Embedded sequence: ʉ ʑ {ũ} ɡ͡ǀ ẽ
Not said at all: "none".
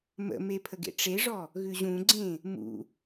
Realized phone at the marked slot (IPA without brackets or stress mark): ũ